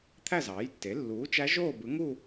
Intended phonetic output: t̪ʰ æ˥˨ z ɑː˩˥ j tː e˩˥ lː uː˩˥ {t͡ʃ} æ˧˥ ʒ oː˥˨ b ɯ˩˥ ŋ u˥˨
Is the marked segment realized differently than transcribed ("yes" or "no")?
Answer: no